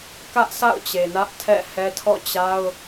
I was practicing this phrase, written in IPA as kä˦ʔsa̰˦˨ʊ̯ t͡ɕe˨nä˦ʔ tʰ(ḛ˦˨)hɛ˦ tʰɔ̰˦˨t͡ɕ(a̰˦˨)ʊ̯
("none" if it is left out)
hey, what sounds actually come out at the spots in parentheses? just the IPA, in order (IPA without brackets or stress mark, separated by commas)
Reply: ɛ̰˦˨, a˦